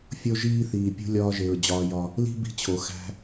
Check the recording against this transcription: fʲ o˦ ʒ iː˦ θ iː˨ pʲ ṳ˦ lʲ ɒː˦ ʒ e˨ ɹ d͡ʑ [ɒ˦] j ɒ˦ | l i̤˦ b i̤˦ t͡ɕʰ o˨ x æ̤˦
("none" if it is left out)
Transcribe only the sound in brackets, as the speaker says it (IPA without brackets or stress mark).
ɒː˦